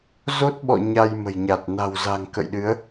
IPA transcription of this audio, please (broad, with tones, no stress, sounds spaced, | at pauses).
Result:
z o˦˥ t̚ ɓ ɔ̰˧˨ ɲ a˧ j m ə̤˨˩ j ɲ a˨˩ t̚ n a̤˨˩ w z a̤˨˩ ŋ k ə̰˧˨ j ɗ ɨ˨˦ ə̯